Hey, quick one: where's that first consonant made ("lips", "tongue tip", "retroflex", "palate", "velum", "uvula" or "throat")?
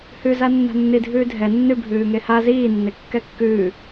throat